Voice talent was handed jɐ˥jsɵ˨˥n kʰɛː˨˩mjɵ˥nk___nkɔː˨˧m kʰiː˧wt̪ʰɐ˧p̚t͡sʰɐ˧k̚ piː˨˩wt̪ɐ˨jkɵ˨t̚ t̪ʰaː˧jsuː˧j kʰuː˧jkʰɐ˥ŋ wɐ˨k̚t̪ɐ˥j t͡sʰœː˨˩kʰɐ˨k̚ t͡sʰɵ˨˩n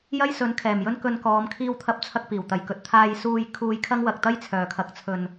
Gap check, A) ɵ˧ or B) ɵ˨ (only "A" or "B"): A